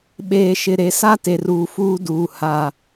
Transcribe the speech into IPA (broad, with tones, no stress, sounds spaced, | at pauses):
ɓ eː˨ ʃ ɪ˨ ɾ e˨ s a˦ t e˨ r uː˨ f uː˦ d uː˨ h aː˨